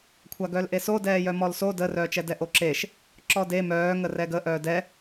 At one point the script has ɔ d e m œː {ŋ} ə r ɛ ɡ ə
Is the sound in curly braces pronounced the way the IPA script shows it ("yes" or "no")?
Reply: yes